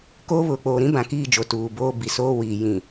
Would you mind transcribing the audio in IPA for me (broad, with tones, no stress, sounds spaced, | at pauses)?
k oː˦ β ʊ˨ k͡p oː˨ ɾ ĩ˦ b ã˨ k iː˦˨ d͡ʒ o˨ t uː˨ b oː˦ b i˨ s oː˦ w iː˨ j ĩ˨